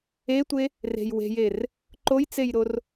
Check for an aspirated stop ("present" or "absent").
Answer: absent